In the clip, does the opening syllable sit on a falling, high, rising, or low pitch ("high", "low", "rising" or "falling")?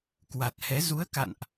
low